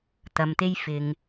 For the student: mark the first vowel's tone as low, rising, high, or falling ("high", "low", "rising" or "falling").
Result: low